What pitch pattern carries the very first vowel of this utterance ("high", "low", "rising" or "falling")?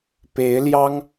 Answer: rising